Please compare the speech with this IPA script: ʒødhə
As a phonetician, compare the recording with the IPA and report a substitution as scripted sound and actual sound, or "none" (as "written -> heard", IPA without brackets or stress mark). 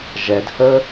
ø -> ɛ